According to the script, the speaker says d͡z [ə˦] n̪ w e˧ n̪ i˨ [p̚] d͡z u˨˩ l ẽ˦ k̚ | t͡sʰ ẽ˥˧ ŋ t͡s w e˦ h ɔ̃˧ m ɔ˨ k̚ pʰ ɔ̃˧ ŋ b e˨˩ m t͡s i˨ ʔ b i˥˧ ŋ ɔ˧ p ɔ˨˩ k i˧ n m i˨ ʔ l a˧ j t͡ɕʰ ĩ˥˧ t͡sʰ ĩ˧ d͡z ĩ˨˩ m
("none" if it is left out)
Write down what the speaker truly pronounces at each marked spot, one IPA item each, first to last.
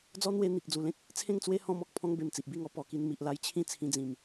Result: ɔ˦, k̚

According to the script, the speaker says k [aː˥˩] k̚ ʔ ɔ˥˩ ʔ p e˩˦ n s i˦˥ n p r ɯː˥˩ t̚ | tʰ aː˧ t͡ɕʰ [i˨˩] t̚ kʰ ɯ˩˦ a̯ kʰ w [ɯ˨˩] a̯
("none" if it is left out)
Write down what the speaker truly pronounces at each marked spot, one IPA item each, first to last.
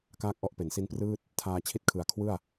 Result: aː˥˩, i˦˥, ɯ˥˩

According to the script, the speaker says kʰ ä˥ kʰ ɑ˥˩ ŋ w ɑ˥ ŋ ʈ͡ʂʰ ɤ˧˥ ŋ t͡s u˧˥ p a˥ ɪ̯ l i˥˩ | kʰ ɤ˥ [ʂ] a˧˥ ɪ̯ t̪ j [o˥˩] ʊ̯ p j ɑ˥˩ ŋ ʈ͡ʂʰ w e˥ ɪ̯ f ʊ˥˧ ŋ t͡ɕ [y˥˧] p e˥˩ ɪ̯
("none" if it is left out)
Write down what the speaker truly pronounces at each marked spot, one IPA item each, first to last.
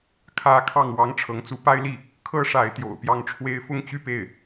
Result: ʂ, o̰˨˩, y˥˧

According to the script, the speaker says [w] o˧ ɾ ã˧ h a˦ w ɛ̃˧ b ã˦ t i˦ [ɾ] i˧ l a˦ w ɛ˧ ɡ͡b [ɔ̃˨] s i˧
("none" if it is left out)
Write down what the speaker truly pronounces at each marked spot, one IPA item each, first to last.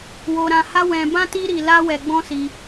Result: w, ɾ, ɔ̃˦

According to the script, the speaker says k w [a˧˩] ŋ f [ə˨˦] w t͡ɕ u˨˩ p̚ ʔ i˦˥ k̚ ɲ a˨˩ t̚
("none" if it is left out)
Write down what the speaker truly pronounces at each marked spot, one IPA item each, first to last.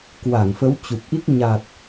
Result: a˧˩, ə˨˦

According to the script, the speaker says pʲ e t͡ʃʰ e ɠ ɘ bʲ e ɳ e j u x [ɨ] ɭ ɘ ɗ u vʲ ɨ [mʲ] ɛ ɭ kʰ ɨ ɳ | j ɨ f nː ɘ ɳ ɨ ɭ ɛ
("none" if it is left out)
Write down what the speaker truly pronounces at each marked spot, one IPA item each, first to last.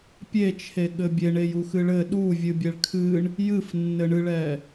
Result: ɨ, bʲ

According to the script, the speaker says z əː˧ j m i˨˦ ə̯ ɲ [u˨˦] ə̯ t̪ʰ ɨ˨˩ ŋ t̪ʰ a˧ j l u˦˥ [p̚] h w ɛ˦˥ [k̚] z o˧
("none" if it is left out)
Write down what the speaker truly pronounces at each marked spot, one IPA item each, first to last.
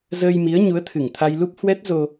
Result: u˨˦, p̚, t̚

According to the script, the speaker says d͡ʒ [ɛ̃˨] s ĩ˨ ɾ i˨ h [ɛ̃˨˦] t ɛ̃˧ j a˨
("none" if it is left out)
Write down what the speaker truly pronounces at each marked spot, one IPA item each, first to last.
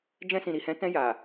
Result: ɛ̃˧, ɛ̃˨˦

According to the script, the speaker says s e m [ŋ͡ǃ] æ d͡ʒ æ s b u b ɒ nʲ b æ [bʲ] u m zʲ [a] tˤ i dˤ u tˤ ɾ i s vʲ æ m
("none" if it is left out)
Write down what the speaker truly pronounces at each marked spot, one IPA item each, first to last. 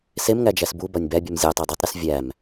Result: ŋ, bʲ, æ

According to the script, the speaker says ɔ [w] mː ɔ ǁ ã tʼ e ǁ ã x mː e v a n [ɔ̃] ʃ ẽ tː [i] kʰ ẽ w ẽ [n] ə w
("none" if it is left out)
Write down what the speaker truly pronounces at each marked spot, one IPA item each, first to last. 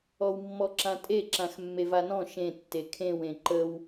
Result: w, ɔ̃, e, ǃ

